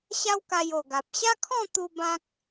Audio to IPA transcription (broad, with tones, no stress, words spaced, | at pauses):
ɕa˦wka˧jo˨˩ɡa˨p̚ ɕa˦kʰɔ̃˥˧t̪u˧ bã˦k̚